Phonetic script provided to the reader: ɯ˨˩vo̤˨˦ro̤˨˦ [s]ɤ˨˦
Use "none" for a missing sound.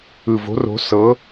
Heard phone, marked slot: s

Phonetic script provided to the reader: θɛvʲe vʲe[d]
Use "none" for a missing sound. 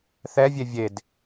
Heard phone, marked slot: d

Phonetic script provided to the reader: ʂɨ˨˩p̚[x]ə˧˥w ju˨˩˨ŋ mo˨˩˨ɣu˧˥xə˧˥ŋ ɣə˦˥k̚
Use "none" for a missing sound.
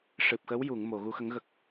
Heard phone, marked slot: x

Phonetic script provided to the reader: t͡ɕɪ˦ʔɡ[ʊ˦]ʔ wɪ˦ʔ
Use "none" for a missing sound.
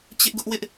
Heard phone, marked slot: ʊ˦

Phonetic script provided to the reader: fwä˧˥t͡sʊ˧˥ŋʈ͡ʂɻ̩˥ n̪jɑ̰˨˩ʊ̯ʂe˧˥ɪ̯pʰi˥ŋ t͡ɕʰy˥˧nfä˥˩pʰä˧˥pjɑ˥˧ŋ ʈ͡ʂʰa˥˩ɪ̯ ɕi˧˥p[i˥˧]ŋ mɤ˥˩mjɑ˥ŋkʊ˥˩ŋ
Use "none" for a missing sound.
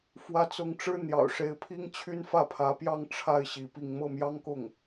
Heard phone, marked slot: i˥˧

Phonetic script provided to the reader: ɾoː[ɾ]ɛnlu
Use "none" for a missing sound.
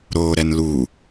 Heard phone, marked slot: ɾ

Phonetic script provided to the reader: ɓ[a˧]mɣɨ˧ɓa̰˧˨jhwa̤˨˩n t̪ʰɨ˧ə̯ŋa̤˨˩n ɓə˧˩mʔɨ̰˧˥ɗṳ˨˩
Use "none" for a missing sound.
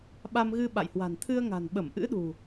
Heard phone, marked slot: a˧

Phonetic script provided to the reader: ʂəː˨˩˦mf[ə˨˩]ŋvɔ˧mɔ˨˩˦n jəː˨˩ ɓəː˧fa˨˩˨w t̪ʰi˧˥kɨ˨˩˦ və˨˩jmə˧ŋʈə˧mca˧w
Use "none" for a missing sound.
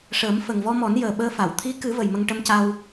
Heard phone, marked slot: ə˨˩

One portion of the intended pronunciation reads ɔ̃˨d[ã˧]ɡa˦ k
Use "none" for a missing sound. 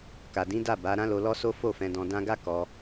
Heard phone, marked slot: ã˧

